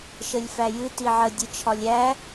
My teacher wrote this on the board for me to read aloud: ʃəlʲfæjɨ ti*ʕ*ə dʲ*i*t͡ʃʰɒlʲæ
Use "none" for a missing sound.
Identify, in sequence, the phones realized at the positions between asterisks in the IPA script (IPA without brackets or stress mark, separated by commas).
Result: ʕ, ɨ